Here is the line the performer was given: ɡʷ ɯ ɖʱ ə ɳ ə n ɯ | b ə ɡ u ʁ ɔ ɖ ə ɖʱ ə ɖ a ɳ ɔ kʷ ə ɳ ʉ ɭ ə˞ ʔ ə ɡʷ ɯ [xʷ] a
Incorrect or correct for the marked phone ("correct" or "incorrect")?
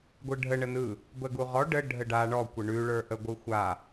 correct